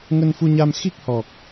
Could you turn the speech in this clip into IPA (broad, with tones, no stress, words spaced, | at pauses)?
ŋə˧nfu˧ɲa˧m xi˦˥k̚hɔ˨˩k̚